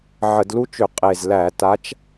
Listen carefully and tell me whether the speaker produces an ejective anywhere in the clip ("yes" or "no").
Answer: yes